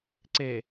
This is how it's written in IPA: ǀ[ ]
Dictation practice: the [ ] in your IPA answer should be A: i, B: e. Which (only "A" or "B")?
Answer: B